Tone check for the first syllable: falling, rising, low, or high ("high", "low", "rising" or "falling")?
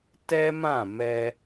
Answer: high